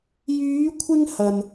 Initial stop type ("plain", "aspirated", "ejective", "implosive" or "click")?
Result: aspirated